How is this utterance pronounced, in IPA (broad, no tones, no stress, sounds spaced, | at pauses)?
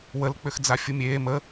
w ə l k͡p ʏ x d͡z a fʲ u mʲ eː m ə